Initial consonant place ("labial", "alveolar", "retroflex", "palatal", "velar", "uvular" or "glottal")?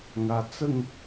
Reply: velar